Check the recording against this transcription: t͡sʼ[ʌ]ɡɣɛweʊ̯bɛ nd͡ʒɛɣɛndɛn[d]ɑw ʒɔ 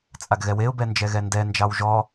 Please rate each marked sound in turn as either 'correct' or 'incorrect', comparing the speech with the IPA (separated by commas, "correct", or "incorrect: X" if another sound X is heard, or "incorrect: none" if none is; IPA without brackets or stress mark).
incorrect: a, incorrect: d͡ʒ